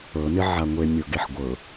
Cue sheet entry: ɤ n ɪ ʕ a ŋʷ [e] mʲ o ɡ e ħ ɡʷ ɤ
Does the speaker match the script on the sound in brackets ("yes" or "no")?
yes